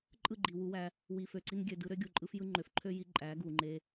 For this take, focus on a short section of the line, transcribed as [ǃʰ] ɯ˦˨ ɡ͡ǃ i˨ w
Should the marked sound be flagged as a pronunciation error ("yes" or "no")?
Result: yes